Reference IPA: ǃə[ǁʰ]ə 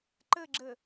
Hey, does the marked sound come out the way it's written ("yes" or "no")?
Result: no